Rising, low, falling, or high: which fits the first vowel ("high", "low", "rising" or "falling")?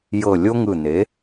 low